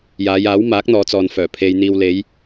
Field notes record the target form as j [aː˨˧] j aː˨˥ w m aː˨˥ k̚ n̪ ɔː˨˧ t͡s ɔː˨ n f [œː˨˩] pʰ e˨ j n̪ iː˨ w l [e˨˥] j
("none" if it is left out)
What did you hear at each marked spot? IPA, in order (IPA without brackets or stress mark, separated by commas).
aː˨˧, œː˨˩, e˨˧